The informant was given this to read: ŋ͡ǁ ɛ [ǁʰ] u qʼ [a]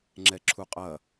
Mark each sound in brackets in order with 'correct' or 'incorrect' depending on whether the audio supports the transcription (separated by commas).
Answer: correct, incorrect